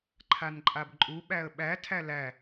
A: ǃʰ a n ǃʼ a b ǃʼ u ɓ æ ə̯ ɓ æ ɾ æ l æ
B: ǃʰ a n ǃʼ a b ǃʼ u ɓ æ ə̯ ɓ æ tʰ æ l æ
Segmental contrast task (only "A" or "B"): B